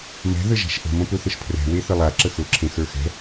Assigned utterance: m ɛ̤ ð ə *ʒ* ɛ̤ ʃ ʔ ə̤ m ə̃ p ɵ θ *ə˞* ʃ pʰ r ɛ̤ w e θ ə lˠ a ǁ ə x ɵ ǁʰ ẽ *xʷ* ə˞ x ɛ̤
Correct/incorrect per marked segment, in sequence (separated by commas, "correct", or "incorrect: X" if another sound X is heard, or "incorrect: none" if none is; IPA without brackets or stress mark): correct, incorrect: ə, incorrect: x